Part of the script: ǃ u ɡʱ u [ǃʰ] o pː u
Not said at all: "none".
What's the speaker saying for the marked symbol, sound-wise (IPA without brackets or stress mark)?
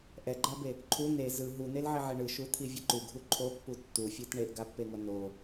ǃʰ